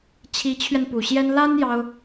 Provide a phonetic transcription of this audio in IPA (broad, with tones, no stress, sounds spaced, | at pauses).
t͡ɕʰ i˧˥ t͡ɕʰ ɥ ɛ˧ n p u˨˩ ɕ j ɛ˥ n l a˥ n j ɑ˥ ʊ̯